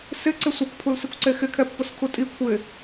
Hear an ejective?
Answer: yes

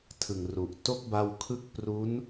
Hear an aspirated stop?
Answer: yes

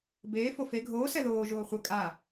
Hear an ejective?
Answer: yes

